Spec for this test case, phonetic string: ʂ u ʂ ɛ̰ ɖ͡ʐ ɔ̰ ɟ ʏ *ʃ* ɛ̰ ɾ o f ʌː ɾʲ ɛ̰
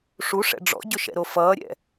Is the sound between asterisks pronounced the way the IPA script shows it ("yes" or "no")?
yes